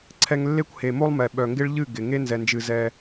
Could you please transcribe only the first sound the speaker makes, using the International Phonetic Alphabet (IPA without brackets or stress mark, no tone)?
ǀʰ